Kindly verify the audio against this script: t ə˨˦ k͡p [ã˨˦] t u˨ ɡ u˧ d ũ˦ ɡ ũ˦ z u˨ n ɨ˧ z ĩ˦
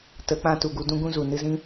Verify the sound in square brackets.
incorrect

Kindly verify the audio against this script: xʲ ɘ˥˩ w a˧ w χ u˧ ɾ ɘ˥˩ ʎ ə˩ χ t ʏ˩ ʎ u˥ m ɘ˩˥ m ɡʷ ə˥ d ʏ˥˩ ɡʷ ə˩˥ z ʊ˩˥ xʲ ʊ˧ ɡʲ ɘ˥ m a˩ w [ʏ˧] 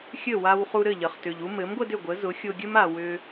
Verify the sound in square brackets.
correct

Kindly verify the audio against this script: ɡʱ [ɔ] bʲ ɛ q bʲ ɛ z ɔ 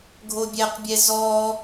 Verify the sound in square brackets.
incorrect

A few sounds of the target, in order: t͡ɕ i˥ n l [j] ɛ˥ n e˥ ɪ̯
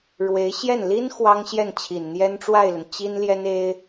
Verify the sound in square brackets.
correct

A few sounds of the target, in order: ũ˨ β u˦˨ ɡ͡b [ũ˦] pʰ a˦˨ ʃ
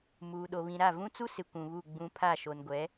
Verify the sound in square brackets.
correct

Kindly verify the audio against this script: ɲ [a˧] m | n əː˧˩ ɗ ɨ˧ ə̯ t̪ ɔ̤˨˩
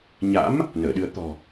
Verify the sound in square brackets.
incorrect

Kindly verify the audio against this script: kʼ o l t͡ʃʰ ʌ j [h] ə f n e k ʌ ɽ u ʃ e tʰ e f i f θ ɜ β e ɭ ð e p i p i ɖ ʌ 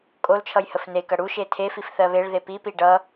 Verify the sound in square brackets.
correct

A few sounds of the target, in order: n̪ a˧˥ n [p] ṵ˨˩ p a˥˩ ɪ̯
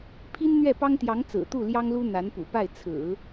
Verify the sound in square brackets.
correct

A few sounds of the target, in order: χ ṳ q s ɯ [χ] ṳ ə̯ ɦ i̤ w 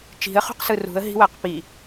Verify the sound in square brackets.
incorrect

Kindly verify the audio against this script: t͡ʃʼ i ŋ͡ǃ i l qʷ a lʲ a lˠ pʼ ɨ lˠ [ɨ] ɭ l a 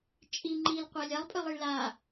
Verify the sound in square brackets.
incorrect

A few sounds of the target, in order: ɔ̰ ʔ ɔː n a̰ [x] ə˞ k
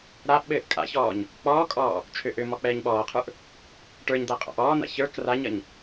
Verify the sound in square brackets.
incorrect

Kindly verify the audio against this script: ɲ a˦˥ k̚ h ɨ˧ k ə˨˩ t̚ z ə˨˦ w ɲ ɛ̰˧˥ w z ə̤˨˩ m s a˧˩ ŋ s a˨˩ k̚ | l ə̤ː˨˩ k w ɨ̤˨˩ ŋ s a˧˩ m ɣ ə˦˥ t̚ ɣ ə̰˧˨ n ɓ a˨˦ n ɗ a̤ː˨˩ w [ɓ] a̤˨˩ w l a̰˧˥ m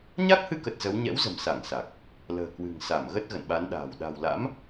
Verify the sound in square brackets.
incorrect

